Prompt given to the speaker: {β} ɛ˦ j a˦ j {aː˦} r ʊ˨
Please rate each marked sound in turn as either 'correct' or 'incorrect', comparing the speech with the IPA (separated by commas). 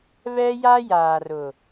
correct, incorrect